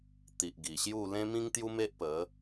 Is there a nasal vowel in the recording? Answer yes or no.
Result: yes